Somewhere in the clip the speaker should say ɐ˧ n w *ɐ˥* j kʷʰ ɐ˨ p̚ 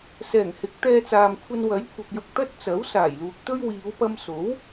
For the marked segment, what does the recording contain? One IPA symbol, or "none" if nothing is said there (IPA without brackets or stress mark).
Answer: ɐ˨˥